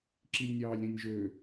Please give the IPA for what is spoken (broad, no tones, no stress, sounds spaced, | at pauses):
ǁ i lʲ nʲ ɑː lʲ ɾ ĩ nʲ ʒ ø